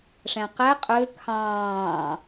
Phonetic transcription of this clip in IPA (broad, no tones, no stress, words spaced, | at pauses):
ʂæ̃qæ qʼø kʰɑ̃ː